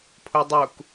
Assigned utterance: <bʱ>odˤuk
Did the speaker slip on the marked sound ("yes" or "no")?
yes